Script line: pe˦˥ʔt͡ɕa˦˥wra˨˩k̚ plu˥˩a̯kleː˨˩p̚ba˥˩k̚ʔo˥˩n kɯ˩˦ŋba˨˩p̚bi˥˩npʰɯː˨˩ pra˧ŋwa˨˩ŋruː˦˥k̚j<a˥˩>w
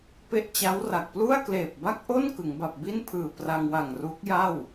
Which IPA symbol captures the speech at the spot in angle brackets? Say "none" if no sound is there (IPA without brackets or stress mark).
a˥˩